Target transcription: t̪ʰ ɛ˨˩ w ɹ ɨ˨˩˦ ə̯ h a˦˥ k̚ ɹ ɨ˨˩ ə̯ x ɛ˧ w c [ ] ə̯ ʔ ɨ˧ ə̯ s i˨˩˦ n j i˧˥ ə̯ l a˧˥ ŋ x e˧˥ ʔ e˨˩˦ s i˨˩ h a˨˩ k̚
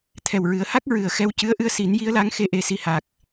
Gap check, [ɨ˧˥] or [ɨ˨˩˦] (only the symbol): ɨ˧˥